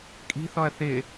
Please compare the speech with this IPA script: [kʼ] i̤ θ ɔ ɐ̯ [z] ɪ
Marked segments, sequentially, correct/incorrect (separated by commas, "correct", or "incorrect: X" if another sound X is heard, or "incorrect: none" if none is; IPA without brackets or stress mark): correct, incorrect: θ